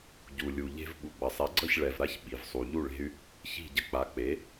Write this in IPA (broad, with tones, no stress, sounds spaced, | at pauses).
ɟ u˩ lʲ u˩ ʎ e̤˧ v ɓ u˩ ɡ͡b ʌ˩ sˤ e˩˥ ɡ͡ǀ ʌ˥˩ ç ɭ ɛ˩ v ɾ a˧ ç ɓ i˩ v sˤ u˩ ʎ u˥˩ ɭ e̤˧ y̯ | ç i̤˥˩ ɟ ə˧ k͡p a˩˥ k͡p e˩˥